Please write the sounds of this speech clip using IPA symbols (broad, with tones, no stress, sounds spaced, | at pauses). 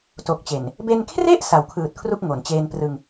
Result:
t o˨˩ k̚ t͡ɕ e˨˩ n | b e˧ n kʰ r e˥˩ ʔ s a˩˦ w kʰ ɯː˨˩ t̚ kʰ r u˥˩ k̚ ŋ o˩˦ n t͡ɕ eː˧ n p r ɯ˧ ŋ